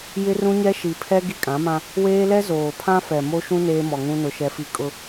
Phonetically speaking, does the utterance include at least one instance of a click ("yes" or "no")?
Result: no